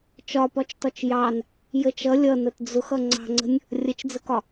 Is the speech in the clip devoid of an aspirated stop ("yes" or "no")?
yes